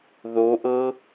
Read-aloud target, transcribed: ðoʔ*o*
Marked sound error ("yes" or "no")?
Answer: yes